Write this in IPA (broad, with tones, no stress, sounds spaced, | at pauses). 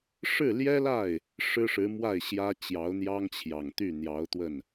ʂ ɻ̩˥˩ l j ɛ˥ l a˥˩ ɪ̯ | ʂ ɻ̩˥ ʂ ɻ̩˧˥ m w a˥˩ ɪ̯ ɕ j ä˥ t͡ɕ j ɑ˧˥ ʊ̯ n̪ j ɑ˥ ŋ t͡ɕʰ j ɑ˨˩ ŋ t̪ y˥˩ n̪ j ɑ˧˥ ʊ̯ t̪ w ə˥˩ n